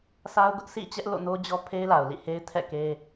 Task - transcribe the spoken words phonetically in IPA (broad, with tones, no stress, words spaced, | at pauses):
sa˦ʊ̯ ɡʊ˦ʔsʰḭ˦˨t͡ɕɛ˦ʔ lo̰˦˨no˦d͡ʑɔ˦ pʰe˦ɪ̯la˨ʊ̯lḭ˦˨he˦ɪ̯ tʰɛ̰˦˨ke˦